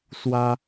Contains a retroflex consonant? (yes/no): no